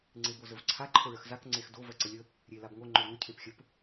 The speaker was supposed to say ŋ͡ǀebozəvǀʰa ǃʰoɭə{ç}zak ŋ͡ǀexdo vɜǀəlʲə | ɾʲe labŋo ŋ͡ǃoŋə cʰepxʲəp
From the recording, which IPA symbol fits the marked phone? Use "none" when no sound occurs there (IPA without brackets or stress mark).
x